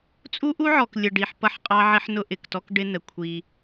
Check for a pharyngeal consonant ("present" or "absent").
present